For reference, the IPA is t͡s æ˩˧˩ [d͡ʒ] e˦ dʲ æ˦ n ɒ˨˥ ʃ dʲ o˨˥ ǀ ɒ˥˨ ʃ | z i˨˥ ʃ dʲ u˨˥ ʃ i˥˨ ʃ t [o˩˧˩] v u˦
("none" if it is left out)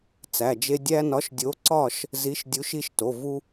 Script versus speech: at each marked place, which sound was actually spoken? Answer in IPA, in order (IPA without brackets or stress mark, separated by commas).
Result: d͡ʒ, o˩˧˩